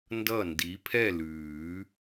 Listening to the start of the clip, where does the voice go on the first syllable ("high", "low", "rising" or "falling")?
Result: falling